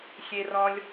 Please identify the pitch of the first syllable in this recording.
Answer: high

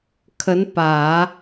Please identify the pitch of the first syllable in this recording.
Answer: rising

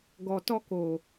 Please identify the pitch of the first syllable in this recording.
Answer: low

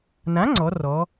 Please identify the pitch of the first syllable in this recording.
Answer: rising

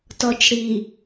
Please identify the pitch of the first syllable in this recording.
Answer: low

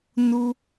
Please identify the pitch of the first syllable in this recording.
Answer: low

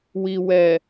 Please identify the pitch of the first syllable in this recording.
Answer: low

